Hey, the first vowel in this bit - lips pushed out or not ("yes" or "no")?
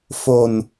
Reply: yes